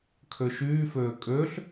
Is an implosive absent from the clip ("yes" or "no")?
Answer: yes